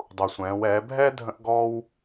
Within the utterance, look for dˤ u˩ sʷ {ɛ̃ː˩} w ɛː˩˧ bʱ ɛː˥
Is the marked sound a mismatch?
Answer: yes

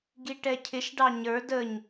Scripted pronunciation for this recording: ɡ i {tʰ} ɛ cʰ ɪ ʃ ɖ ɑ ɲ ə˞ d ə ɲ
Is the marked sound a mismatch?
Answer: yes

